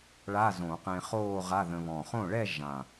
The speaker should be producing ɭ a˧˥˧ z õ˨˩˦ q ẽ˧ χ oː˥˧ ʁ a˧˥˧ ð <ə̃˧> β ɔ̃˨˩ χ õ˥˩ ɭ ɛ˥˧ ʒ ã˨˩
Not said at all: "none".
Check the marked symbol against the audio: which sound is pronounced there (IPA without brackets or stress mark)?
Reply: ə̃˧